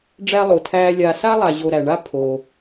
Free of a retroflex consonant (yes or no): no